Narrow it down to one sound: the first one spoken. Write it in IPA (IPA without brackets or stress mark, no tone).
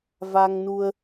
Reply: v